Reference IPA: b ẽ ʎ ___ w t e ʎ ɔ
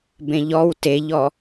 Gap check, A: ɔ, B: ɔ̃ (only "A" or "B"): A